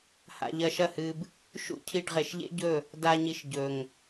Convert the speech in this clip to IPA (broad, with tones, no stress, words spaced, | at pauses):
ha̰˧ʎɐ˧ʃɐ˦˨hɨ˧b | ʃṵ˦cʰi˧ɖ ʁe˨ʃʎḛ˦ɟɵ˦˨ | da˧ ɲi˧ʃ ɟɵ˨ŋ